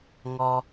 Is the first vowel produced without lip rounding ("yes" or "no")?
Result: no